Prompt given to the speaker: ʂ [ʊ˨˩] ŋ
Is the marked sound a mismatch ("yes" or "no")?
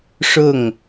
yes